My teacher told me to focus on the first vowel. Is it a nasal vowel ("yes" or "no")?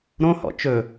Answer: yes